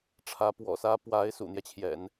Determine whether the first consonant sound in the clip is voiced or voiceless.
voiceless